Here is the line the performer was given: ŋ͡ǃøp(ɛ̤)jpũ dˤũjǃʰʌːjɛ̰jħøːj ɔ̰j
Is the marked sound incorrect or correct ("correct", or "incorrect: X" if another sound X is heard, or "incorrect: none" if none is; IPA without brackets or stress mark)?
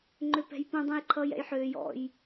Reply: correct